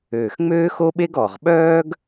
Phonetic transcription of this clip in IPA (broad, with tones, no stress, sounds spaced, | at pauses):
øː˨˩ x ŋ͡m øː˥ x o˥ ɓ e˥ ɡ ɔ˨˩ ʁ ɓ œː˥ ɡ